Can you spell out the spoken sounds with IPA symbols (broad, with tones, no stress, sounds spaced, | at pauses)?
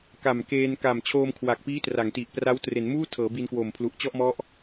k a˨˩ m k eː˧ n k a˨˩ m t͡ɕʰ oː˧ m kʰ w a˨˩ k̚ p iː˦˥ t r a˩˦ ŋ t i˨˩ ʔ p r a˦˥ w t r e˩˦ n m uː˥˩ tʰ ɤː˩˦ b i˧ n k w oː˨˩ m pʰ l u˨˩ ʔ t͡ɕ ɔ˥˩ ʔ m ɔ˦˥ ʔ